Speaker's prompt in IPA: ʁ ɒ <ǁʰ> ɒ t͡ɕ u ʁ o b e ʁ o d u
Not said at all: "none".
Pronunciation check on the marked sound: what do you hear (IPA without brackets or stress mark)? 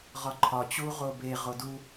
ǃʰ